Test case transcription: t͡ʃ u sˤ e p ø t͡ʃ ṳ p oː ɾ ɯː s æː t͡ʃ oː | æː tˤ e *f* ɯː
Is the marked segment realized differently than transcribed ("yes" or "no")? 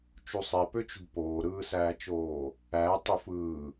no